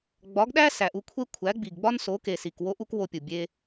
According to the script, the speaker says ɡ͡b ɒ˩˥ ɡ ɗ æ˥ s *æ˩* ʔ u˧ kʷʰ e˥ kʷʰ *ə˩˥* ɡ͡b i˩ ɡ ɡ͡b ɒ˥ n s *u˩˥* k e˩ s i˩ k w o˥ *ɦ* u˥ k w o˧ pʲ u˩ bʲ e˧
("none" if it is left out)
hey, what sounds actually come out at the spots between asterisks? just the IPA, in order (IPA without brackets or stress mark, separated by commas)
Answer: æ˩, æ˩˥, o˩˥, ʔ